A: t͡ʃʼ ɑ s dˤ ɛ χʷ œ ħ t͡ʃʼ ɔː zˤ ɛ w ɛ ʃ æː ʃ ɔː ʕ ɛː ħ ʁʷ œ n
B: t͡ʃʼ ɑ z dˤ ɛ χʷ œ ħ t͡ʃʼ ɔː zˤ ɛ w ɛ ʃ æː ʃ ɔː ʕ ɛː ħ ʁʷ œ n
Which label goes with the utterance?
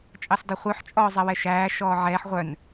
A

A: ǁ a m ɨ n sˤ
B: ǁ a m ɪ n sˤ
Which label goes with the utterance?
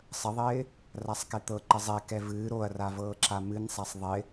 A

